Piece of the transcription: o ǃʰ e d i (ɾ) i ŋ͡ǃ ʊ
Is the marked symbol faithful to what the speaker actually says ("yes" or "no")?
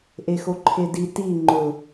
no